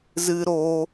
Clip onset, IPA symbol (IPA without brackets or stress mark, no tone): z